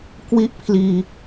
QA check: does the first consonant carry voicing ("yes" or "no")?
no